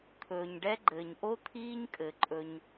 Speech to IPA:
t̪ʰ ɵː˨ ɲ ɖ ɛ˦ ɡ͡ǃ ɘː˨ ɲ ʔ o˦ t̪ʰ iː˦ ɲ kʼ ɘ˨ ǃʼ ɵ˧ ɲ

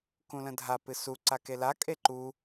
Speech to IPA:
k ũ l ə̃ dʱ a p ɨ s u ǀ a k e l a kʼ e ǃ u

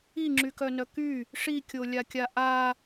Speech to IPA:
i ŋ͡ǁ y k œ n œ k y | ʂ i kʲ o lʲ a kʲ a ʔ a

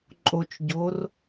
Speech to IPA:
ǃʼ o t͡ʃ ɟ o r

